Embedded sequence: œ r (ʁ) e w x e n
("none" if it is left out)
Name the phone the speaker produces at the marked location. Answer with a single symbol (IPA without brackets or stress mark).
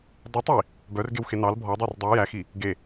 ɡ